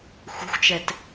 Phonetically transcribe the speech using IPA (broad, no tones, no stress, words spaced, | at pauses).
xʷɛ̤xʷt͡ʃɛt